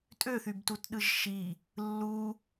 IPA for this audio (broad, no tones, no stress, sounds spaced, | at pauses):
tʼ ø θ y b t u t ɗ ɯ ʒ ʃ i | lː u